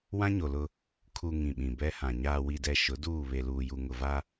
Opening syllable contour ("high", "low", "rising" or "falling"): high